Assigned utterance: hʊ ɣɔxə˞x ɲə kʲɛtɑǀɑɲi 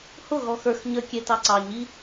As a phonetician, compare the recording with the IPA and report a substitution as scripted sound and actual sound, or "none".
none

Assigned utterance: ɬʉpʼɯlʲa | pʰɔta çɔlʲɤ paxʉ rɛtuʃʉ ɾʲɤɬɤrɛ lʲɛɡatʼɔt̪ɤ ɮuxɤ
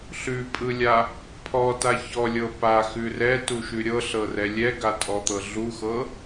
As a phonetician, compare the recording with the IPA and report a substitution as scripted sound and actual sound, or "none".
none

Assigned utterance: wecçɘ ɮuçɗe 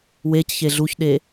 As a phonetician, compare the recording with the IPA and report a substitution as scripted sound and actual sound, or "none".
ɘ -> e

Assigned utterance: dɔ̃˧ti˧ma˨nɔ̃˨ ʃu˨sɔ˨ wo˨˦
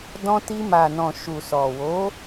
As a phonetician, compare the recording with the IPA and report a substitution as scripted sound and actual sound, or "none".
none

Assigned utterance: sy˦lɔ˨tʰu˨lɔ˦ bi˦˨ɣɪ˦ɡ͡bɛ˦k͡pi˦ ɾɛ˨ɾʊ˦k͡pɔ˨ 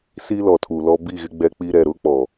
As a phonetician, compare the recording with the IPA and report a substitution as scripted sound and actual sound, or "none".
y˦ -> i˦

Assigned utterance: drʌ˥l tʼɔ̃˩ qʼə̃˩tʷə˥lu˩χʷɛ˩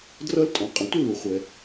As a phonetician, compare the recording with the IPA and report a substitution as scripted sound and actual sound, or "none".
none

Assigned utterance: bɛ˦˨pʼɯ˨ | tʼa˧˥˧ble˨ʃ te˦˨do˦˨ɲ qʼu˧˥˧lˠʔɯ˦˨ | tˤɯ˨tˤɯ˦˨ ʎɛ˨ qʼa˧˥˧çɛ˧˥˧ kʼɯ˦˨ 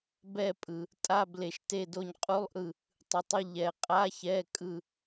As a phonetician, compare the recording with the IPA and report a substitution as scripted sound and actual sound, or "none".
none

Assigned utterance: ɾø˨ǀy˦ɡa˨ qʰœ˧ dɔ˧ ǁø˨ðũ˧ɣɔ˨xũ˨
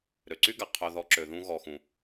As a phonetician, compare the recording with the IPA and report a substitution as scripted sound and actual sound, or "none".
d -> ð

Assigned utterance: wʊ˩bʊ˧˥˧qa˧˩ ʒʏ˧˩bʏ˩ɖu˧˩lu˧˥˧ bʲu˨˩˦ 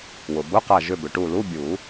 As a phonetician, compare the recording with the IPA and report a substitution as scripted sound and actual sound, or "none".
ɖ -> ʈ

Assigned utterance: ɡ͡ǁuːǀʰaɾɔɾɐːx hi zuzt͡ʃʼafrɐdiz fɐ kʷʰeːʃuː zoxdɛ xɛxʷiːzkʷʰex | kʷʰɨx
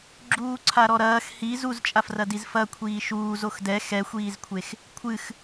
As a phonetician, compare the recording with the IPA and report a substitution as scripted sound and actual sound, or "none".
eː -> iː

